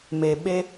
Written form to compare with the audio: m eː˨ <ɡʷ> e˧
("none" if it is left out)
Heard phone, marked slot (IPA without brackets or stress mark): ɓ